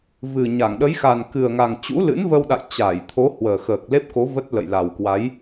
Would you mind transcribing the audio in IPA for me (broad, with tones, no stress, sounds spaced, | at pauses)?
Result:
v ɨ˨˩ ɲ a˧˩ ŋ ɗ ə˨˦ j x a˨˩ n k ɨ˨˩ ə̯ ŋ a˨˩ ŋ t͡ɕ ṵ˧˥ l ɨ̰˧˥ n v ə˧ w ɗ a̰˧˨ j t͡ɕ a˧˩ j t̪ʰ o˨˦ h w əː˨˩ x əː˨˩ k̚ l e˦˥ p̚ k o˨˦ v ə˦˥ t̚ l ə̰˧˨ j l a˨˩ w k w a˨˦ j